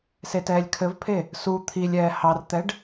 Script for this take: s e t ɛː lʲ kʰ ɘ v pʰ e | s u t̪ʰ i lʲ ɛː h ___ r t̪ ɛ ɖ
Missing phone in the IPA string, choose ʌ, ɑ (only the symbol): ɑ